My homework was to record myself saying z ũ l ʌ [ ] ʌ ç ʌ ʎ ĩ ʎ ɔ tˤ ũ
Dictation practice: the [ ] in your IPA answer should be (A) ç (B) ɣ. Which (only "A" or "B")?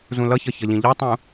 A